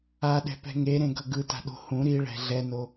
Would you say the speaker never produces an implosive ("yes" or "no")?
no